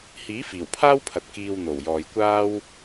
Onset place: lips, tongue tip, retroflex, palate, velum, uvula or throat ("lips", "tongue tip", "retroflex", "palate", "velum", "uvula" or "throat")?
throat